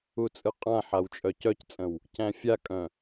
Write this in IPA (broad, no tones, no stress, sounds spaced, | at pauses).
u t͡sʼ ɯ qʼ ã ħ a w t͡ʃʼ œ c œ c t͡sʼ ə̃ w | c æ̃ fʲ a kʼ œ̃